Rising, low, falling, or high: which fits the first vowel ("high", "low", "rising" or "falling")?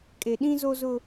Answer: low